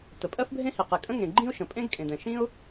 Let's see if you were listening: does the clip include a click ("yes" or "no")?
yes